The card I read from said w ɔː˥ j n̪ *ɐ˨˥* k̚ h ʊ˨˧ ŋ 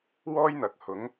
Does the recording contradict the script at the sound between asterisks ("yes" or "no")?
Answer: yes